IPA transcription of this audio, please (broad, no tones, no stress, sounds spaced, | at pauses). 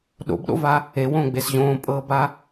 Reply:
ɗ o̰ b ɗ o̰ v a | e w õː ɡ͡b e s ʑ õː pʼ ɤː b a